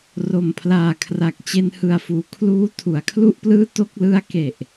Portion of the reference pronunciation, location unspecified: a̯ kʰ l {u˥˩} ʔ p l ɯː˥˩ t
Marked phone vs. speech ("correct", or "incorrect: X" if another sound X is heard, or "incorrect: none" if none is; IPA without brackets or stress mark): correct